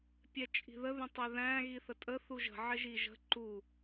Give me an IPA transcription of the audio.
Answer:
pʲ ɛ t͡ʃʼ i̤ ð ə ð ə̃ tˤ ɛ ð æ̃ ɣ i θ ə tʼ ə θ u ʒ ə̤ ʕ ɪ ʒ i ʒ ə̤ ǃ u

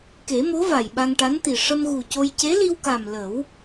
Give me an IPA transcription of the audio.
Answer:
k e˨˩˦ m o˧˥ v a˨˩ j ɓ a˧ ŋ ʈ a˧˥ n t̪ i˨˩ ʂ ə˧ m ɣ u˨˩ c o˧ j c e˧˥ l i˧ w k a˨˩ m l ə˨˩˦ w

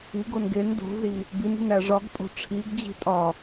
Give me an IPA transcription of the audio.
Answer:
i ɡ o n ɡ e n d o̤ z i | b i n i̤ n æ ʐ ɒ ɡ pʼ o̤ ʈ͡ʂʰ i ɡ d͡ʑ i̤ tʼ ɒ

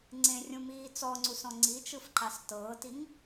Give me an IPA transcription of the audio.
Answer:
ŋ͡ǀ ẽ rʲ ũ m iː t͡s ɔ ŋ͡ǀ u s ɔ̃ ŋ͡ǀ i t͡ʃ ɯ f ǃ a s t ɤː t i ŋ

